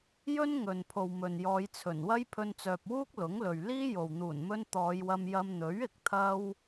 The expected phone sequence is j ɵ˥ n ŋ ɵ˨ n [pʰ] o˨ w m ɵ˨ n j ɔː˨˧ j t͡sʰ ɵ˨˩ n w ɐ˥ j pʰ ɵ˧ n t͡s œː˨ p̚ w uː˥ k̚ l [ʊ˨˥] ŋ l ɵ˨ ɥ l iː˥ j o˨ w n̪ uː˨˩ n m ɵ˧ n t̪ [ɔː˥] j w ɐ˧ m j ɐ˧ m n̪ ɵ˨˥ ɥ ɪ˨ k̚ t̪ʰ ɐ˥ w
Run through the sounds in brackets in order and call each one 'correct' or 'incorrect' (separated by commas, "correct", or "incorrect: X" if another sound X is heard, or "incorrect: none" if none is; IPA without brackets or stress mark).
correct, correct, incorrect: ɔː˨˧